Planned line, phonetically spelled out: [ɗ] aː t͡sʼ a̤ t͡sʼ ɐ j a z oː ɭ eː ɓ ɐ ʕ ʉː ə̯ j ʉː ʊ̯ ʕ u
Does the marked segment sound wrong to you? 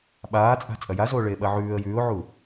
yes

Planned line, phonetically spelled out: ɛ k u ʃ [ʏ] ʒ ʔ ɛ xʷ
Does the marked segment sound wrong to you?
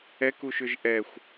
no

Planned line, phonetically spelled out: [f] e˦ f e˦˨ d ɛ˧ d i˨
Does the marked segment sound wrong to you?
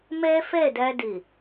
yes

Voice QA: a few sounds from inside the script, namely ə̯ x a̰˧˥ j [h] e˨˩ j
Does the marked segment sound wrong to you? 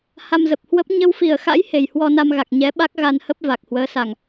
no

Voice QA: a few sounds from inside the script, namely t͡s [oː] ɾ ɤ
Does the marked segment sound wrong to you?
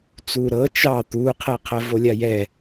yes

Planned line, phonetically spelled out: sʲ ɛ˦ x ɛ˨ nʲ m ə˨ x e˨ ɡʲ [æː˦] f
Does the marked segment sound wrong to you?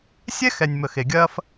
yes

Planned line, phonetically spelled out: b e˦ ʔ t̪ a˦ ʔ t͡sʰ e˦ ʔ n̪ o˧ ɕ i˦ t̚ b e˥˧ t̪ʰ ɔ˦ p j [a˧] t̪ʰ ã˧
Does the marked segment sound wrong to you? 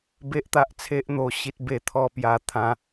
no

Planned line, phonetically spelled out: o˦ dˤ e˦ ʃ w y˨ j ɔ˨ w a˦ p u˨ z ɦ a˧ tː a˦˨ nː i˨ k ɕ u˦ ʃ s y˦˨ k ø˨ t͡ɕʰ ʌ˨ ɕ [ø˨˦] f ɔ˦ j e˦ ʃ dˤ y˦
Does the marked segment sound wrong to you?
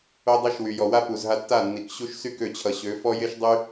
no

